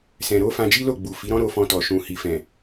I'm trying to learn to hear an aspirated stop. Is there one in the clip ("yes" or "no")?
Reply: no